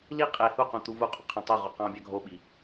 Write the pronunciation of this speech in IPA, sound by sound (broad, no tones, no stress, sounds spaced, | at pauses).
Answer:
l i qʼ e h u q ũ t̪ u v u qʼ ũ qʰ ɑ̃ tˤ o ʁ o q ɑ̃ bʲ ɑ ɡʱ o ɓ i